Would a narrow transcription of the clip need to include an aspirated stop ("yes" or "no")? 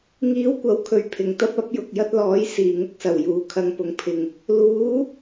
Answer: yes